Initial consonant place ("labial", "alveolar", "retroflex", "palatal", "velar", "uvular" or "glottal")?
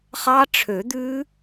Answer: uvular